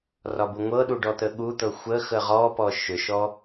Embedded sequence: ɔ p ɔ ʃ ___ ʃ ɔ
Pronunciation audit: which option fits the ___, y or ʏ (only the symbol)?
ʏ